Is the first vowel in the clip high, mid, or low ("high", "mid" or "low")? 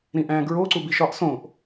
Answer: high